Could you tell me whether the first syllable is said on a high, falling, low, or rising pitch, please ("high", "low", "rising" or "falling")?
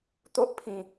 high